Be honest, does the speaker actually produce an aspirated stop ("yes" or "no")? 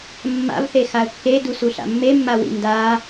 no